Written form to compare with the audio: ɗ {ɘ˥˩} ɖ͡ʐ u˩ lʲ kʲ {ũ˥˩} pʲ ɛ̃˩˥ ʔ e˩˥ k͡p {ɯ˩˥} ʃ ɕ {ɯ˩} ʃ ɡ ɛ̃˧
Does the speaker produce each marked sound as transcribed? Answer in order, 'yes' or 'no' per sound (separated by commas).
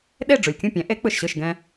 no, yes, no, no